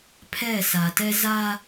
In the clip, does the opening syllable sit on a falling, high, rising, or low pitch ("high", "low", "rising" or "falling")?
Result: falling